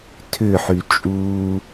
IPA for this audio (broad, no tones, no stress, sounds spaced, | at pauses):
tʰ ʏ ħ y t͡ʃʼ uː